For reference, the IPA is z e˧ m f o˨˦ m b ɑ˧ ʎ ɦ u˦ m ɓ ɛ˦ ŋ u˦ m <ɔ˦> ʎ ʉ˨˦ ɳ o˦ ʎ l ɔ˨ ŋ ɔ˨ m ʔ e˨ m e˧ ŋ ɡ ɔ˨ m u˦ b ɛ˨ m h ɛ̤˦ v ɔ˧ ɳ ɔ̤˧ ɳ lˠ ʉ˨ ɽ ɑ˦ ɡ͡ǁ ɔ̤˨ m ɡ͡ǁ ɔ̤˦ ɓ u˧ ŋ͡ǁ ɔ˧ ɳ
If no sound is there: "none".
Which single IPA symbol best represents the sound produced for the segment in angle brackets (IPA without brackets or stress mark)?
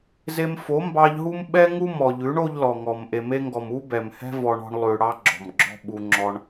ɔ˨